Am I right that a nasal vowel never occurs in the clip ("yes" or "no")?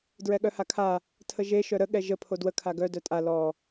yes